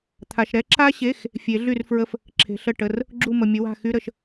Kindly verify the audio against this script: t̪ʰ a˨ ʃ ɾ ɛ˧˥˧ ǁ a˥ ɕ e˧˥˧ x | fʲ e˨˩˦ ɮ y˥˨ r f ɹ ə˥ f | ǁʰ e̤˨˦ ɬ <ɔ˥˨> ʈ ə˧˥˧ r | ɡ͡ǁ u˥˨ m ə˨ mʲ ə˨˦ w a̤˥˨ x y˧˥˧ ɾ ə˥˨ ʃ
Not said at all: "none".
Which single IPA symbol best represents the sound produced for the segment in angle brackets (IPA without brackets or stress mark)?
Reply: ə˥˨